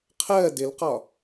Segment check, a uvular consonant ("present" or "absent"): present